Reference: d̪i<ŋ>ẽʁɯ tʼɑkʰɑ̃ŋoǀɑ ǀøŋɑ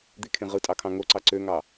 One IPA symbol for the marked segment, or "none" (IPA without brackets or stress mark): kʰ